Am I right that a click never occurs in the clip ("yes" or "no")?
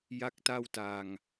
yes